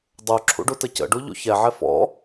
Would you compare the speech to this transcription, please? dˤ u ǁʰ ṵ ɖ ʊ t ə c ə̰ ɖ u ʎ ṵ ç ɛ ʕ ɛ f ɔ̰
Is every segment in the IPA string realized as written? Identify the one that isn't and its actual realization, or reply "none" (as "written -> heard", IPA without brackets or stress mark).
ʊ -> u